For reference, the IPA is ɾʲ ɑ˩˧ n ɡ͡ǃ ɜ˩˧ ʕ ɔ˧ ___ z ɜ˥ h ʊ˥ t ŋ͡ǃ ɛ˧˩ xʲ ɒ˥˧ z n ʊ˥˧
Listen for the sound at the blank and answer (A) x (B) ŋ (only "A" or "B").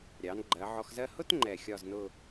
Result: A